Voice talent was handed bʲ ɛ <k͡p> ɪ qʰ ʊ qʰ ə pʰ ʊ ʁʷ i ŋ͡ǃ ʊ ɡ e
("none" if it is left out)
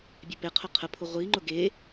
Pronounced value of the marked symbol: p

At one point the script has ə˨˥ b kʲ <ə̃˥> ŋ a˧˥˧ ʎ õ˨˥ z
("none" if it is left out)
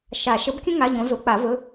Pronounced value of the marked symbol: ə̃˥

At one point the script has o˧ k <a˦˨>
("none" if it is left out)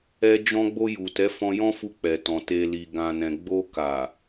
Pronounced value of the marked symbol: a˨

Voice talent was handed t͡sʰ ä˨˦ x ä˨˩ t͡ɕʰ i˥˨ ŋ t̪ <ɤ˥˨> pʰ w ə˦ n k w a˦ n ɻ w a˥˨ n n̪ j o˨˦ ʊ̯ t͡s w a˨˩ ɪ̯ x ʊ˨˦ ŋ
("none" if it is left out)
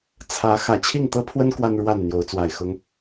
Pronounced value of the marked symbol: ɤ˦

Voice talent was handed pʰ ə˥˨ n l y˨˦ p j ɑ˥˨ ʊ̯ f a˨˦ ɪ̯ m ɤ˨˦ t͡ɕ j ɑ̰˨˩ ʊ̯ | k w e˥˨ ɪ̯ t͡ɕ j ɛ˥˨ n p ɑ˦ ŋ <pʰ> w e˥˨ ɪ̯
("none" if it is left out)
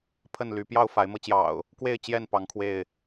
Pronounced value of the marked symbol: kʰ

